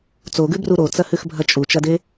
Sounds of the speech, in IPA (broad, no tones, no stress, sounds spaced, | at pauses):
t͡s o ɡ ʉ b r u ɾ o t͡s ɐ h ʉ x bʱ ɐ t͡ʃʼ u t͡ʃ ɐ d e